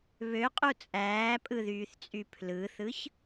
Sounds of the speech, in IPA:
βøqʼu t͡sʼæːpʼɯðyːθt͡sʼy pʰlɯθɯç

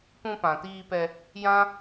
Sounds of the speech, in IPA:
pũ˧pã˨tiː˧pɛ˧ | jã˦

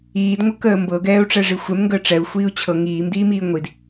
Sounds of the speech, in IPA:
iːd ŋʷɤkəːmbɤ ɡɛːu̯ʈ͡ʂɛʐixʷɛm ŋɡəːʈ͡ʂɛu̯ xʷiːu̯t͡ɕʰɤ ŋiːm diːmiːŋʷid

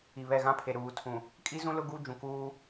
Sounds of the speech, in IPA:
i˨βɛ˦˨ɣã˦pʰe˨ ɾuː˨tʰũ˨ | kʼi˦zũ˦lʊ˦ ɡu˦ d͡ʒũ˨kuː˦

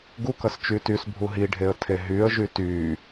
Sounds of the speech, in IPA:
ɡuk ɐst͡ʃytysbʱu ɦiɖʱeə̯ tʰeɦyə̯ʒy ty

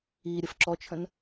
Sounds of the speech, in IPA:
i ɾʲəfǁɔt͡ʃʰə̃n

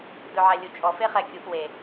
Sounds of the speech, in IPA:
dɵʕælʲut͡ʃʼɔ feχɛkʲuʔ we

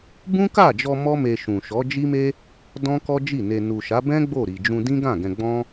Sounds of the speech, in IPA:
bũ˦ka˦˨d͡ʒɔ˧ mɔ˦me˧ʃũ˨ʃɔ˨˦ d͡ʒi˦me˦ | dɔ̃˦kɔ˦d͡ʒi˦˨ne˧ nu˨ʃa˨˦bɛ̃˦ ɡ͡bo˦˨ɾi˨d͡ʒũ˧ dĩ˦ɡã˦˨ɡɛ̃˧ɡ͡bɔ̃˦

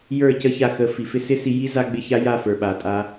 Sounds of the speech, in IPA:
jə˞˦˨cə˦ça˧xə˨˦ fi˨fɪ˧sɪ˦ si˧ji˦ za˦ɡ͡bɪ˦ ça˦ja˦˨ fə˞˨ɓa˨ tʼa˧

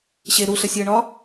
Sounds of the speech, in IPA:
ɕe ɾuɬəsʲəːɳɒ

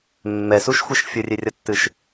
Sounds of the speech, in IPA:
mːɛsuʃxʷeʃ fʲɘrʲerʲɐtːɨʃ

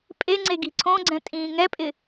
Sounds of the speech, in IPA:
pʼeŋ͡ǀe ɡi̤ǀʰõɡ͡ǀɛ̃ tʼĩːŋɛpʼɪ

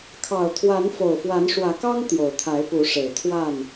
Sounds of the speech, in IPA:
kʰɑ˨˩ʊ̯t̪ʰwa˨˦n fo˨˩ʊ̯fwa˨˦nʂwä˨˦kɑ˦ŋ t̪jo˨˩ʊ̯t̪ʰa˨˦ɪ̯pu˨˦ʂe˨˩ɪ̯ t̪ʰwa˥˨n

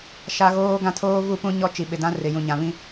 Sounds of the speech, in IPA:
ʃa˦ɣoː˦ɡã˦ tʰoː˦vu˦˨pũ˦ ɲɔ˦t͡ʃi˨ɓɪ˨dã˦ rɪ˨jũ˨ɲã˨βĩ˦

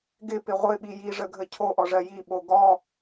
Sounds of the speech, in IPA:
ɡɪpɪ ʁʷɪɓi jiʐəɡʱə cʰoʔɔʐɜ jiɓo ɡɔ

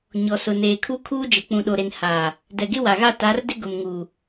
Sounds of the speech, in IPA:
ɲɔ˨sʊ˨ neː˨kʰu˦kʰuː˦d͡ʒɪ˨ k͡pũ˨ɗo˨ɾe˨n haː˨ | dɛ˨ɡɪ˦wa˨ɣa˦˨ ta˨˦rdɪ˦ ɡʊ˨mŋuː˨

